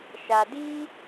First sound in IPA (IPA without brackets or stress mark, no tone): ʃ